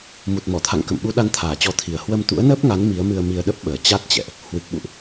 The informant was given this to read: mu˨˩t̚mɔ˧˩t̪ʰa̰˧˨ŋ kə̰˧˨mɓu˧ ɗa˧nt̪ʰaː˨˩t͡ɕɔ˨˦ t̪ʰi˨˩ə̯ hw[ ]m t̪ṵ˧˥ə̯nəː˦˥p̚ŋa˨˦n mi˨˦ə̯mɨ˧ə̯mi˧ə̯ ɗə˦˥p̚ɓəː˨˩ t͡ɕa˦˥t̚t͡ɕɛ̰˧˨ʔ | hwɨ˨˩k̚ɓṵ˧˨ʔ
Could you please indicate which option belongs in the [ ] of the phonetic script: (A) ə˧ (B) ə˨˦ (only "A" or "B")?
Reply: A